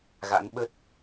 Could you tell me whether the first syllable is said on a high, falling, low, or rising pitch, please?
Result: rising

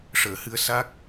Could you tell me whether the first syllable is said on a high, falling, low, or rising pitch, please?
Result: low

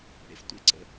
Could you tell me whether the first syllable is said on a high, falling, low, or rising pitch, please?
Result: low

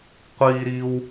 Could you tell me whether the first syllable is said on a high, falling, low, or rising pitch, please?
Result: high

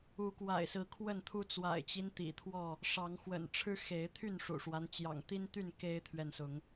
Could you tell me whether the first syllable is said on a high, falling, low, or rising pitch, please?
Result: rising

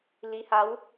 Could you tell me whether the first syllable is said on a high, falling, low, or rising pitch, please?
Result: rising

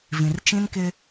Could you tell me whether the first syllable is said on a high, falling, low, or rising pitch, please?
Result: low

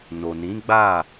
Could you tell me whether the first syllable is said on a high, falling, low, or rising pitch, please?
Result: low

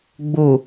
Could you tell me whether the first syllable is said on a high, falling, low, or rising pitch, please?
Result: low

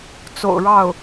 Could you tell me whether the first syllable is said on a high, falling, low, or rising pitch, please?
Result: low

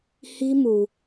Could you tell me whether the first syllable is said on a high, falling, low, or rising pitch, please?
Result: high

